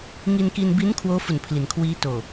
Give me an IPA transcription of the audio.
ŋ i˧ n k iː˧ n b i˦˥ n kʰ w oː˦˥ f u˨˩ n pʰ l i˩˦ n kʰ w iː˦˥ t oː˨˩

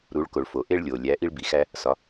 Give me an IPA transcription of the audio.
ɾ u˩˧ ɭ k o˩ ɭ f o˩ ʔ e˧ ɭ lʲ o˩ lʲ æ˩˧ ʔ i˧ ɭ b i˩ x æ˧ | s ɒ˩˧

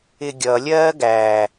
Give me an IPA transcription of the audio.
ɪ ɡʲ ʌ lʲ ɜː ɡ æ

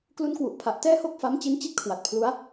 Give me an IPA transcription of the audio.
k l u˦˥ n k w u˨˩ ʔ pʰ a˨˩ ʔ t ɛː˥˩ h o˥˩ k̚ f a˦˥ m t͡ɕ i˦˥ n t͡ɕ i˥˩ t̚ kʰ w a˨˩ t̚ pʰ l u˦˥ a̯

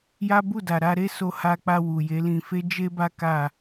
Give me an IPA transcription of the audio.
j a˦ b u˦˨ d a˨ ɾ a˧ ɾ e˦ s o˧ h a˧ k͡p a˧ w u˨ j e˨˦ l ĩ˧ f e˦ d͡ʒ e˦ b a˦ k a˦˨

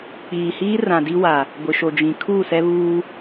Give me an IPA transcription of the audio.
k͡p iː˨ h iː˦ r ã˨ d i˦ w a˨ | ɡʷ ɪ˨ ʃ o˨ d͡ʒ ĩ˨ kʰ uː˦˨ s ɛ˦ β uː˦

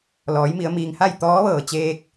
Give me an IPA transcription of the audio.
l ɔː˩˧ j m i˩˧ ə̯ m iː˩ ŋ h a˥˨ j t̪ ɔː˧˥ ʋ ɤː˩ t͡ɕ eː˧ k̚

